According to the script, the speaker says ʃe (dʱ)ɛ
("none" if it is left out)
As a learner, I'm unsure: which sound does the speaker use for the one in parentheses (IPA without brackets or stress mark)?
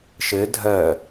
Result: dʱ